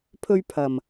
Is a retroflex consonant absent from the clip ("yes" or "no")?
yes